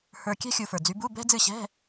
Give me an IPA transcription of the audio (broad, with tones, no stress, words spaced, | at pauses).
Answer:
hə˞˧kʲɛ̤˥ xʲu˧fə˞˨˩d͡zy˧˥ bu˧˥˧bɛ̤˥d͡zɨ˥˨ɕɛ̤˧˥˧